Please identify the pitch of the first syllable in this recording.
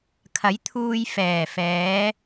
rising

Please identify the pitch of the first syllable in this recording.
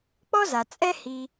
high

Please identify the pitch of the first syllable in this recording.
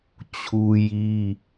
high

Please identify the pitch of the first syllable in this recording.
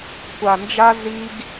low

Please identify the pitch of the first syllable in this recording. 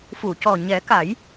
low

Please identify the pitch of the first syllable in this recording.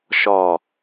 low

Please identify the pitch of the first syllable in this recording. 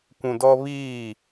low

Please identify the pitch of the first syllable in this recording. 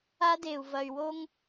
high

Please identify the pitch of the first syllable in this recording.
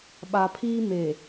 low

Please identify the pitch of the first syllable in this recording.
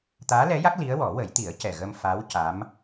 rising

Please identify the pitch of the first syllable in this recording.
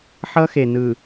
high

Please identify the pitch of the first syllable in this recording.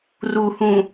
low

